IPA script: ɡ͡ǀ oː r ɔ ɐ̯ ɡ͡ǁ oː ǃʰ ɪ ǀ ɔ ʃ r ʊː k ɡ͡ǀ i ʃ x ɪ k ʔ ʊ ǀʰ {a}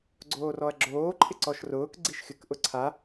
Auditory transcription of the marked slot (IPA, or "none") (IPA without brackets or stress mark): a